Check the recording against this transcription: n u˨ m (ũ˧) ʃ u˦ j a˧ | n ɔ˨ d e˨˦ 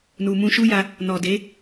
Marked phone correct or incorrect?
correct